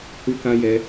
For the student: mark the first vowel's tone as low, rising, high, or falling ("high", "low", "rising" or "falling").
high